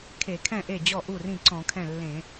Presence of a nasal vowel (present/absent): present